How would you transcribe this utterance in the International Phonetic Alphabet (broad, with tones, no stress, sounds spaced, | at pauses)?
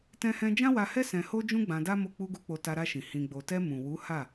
t ɛ̃˦ h ɛ̃˦ d͡ʒ ã˦ w a˧ h ɛ˦ s ɛ̃˧ h o˦ d͡ʒ ũ˦ ɡ͡b ã˧ d a˦ m o˦˨ k͡p u˧ ɡ u˧ k͡p o˧ t a˧ ɾ a˧ ʃ ĩ˨ h ĩ˨ ɡ͡b o˨ t ɛ˧ m ũ˨ w u˨˦ h a˦˨